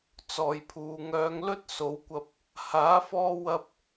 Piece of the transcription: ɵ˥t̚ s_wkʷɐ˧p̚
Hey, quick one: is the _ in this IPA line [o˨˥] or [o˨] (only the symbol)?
o˨˥